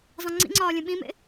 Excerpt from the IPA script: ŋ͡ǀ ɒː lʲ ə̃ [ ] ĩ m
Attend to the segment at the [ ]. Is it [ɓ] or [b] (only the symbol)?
ɓ